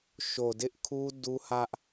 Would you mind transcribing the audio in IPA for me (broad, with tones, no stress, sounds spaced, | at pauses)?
ʃ o˨ d ɪ˦ ʔ kʰ u˦ d u˦ h ä˦ ʔ